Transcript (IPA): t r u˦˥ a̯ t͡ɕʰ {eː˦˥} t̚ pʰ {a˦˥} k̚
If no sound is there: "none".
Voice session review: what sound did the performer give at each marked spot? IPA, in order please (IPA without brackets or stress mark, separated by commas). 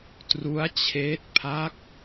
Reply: eː˦˥, a˦˥